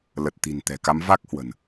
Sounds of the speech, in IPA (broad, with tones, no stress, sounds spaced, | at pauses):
l ə˨˩ t̚ t̪ i̤˨˩ n t̪ ɛ̤˨˩ k a˨˦ m v a˦˥ k̚ h w ə̤˨˩ n